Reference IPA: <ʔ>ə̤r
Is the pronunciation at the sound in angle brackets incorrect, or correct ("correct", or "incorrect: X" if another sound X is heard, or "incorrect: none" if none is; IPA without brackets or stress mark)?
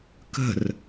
incorrect: k